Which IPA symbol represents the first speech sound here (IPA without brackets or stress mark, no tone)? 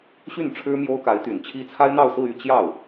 ɕ